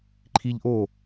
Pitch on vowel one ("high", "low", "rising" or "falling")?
high